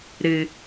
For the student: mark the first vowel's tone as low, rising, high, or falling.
low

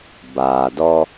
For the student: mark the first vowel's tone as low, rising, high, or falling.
low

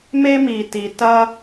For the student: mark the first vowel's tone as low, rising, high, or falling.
high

